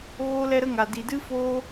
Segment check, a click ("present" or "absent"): absent